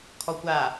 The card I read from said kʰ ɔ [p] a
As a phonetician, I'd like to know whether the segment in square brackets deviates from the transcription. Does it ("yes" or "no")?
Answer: yes